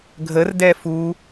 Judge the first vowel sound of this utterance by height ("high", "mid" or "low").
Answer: mid